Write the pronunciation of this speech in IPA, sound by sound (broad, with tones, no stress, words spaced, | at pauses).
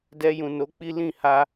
dɛ˧jũ˨no˨˦k͡pi˦ lĩ˦˨ ha˧